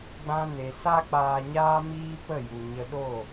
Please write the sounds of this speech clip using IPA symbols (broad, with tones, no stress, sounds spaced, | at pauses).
ɡ͡b ã˧ n e˨ s a˧ k͡p aː˨ ɲ aː˧ m iː˧ p ə˦˨ j u˨ ɲ ə˧ ɗ o˦˨